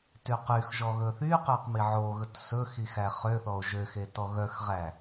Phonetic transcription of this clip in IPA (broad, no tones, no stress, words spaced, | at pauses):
tyqyxʒɔ ɣɵθyqøq miʕoɣɵt sɵxi xæχøθɔo̯ ʒøxe tɔɣœxʁæ